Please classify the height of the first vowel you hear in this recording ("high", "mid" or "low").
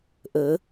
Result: mid